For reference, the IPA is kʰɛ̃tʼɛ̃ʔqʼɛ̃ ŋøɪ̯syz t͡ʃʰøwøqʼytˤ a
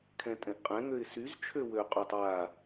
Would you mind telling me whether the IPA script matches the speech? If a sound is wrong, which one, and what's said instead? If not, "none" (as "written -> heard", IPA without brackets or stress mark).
none